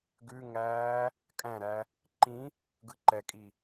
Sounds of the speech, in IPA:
ɡ ʉ ŋ æː | kʼ æ̃ ɾ æ | ǃ ĩ | ɡ ɯ ǃ ɛ kʼ i

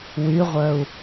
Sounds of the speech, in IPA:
w y ʁʷ œ u̯

